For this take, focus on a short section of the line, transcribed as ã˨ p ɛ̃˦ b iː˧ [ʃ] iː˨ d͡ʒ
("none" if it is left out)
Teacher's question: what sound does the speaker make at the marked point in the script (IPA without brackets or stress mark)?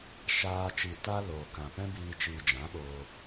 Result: t͡ʃ